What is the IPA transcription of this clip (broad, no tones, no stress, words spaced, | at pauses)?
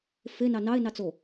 fe nɑnɑe̯ nɑt͡so